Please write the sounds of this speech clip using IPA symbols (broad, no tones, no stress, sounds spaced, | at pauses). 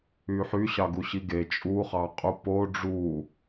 y ħ y ɕ ɑ ɡ u ɕ i ɡ e t͡ʃʼ u χ ɑ qʼ u p o ɖ͡ʐ u